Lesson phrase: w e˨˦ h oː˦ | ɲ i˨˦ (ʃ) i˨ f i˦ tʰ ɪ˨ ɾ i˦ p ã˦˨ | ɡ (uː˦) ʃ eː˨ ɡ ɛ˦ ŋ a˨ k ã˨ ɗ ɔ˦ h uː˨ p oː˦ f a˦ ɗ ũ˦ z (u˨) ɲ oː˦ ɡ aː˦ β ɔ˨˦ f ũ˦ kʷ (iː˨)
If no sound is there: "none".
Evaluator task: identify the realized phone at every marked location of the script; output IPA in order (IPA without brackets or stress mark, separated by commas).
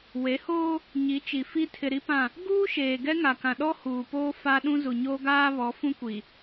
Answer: t͡ʃ, uː˦, u˨, i˨